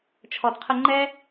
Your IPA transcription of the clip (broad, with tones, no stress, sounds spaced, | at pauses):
t͡ʃʰ ɔ˨ d qʰ ə˧ ŋ͡ǃ ɛ˦